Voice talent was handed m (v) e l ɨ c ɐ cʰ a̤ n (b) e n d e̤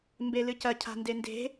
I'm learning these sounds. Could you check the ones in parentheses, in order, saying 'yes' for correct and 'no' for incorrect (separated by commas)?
no, no